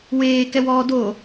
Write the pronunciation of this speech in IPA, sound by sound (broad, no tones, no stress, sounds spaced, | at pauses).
w eː k ɛ w ɔː d o